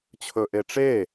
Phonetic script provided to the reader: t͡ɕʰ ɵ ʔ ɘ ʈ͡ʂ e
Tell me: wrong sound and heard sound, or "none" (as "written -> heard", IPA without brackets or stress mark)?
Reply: ɘ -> e